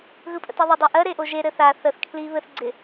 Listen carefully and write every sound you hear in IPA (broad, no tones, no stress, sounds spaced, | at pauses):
ɣ ɯ pʼ ə̰ t ɛ ðˤ ɪ dˤ ɛ ʔ ɜ ɾ e ʔ o ʒ e ɾ ɘ θ a θ ə θ kʰ l iː β ɘ θ ɡ͡ǀ ɪ